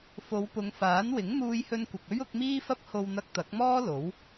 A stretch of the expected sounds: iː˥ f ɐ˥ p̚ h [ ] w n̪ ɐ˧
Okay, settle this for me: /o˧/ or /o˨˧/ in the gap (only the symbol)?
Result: o˧